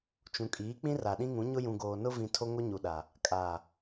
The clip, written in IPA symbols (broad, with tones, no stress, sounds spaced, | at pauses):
t͡ʃ ũ˨ kʼ iː˨˦ k͡p ĩ˦ r a˨ ɗ ĩ˦ ŋ ũ˨˦ ɲ ʊ˦ j ũ˨ ɡ oː˨ n ʊ˦ v ĩ˨ tʰ o˦ ŋ o˦ ɲ u˨ ɗ a˨ | kʼ a˨